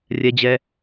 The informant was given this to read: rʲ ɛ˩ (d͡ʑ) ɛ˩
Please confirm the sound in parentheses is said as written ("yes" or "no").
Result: yes